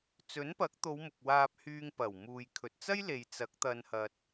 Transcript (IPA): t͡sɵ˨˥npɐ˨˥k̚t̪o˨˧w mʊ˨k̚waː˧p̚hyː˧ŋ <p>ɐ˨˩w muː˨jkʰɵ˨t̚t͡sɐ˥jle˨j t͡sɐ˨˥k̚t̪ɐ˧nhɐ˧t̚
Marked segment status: correct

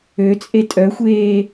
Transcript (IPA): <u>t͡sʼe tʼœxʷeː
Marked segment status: incorrect: ø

